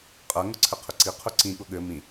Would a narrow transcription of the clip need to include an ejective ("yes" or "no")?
yes